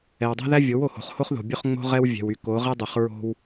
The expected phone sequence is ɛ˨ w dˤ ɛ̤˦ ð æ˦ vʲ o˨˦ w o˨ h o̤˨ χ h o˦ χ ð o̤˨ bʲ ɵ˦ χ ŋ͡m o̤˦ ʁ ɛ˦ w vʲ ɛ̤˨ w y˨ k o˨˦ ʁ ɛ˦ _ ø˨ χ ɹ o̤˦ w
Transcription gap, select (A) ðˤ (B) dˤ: B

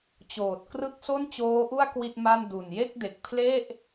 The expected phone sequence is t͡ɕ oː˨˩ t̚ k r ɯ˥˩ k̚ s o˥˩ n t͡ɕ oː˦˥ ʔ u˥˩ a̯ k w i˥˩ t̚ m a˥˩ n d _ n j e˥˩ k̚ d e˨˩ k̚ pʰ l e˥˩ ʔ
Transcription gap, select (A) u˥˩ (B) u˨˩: B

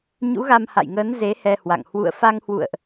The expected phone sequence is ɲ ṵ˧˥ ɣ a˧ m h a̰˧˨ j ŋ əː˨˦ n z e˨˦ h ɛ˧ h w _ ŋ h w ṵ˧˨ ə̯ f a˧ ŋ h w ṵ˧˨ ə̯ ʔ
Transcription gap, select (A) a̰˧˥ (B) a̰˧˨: B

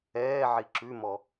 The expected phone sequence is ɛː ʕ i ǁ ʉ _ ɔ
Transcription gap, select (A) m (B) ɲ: A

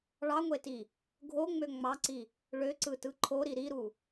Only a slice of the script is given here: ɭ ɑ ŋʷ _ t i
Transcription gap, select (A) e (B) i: A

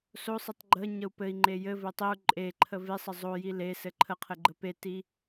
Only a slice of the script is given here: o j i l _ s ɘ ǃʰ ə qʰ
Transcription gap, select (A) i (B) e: B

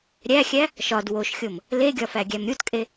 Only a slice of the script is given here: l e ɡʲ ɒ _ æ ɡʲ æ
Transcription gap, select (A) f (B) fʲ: A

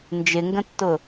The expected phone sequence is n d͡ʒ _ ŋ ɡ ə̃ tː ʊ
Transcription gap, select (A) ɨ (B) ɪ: B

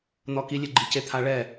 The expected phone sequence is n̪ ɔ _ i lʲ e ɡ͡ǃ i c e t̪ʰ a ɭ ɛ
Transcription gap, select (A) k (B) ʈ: A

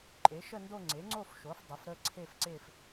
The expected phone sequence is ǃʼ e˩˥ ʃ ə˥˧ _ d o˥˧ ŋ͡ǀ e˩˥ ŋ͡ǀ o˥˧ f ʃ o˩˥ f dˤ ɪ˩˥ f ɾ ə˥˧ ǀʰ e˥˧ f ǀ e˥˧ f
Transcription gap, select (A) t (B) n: B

